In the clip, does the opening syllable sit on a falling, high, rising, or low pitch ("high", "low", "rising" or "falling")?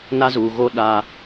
high